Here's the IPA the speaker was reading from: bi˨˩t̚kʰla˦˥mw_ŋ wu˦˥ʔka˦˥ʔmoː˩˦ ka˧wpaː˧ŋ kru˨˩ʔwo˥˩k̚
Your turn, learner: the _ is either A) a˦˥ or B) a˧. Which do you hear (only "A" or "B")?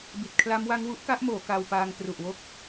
A